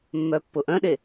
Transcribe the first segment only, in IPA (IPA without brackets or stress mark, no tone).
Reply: mː